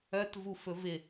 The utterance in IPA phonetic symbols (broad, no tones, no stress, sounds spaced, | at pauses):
œ t v u f ɵ v ɪ